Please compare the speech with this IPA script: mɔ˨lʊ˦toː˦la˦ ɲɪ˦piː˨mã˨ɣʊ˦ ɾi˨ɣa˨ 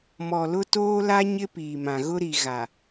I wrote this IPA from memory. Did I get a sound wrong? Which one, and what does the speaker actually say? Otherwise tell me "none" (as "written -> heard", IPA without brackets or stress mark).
none